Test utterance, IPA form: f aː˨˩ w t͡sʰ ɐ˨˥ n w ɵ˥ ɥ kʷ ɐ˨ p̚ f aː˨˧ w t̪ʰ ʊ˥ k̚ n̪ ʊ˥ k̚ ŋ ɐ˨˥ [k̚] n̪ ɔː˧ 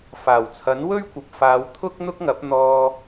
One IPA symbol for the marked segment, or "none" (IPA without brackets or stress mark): p̚